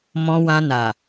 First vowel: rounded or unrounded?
rounded